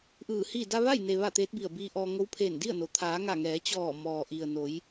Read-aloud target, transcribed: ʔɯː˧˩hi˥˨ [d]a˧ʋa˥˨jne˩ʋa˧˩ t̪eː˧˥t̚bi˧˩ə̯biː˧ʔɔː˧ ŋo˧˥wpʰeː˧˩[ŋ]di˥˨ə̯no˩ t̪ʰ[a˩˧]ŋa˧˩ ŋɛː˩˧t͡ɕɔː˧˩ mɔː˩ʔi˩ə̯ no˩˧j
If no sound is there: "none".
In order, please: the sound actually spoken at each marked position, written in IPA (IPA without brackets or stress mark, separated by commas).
d, n, aː˩˧